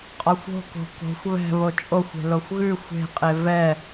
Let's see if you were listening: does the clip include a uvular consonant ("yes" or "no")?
yes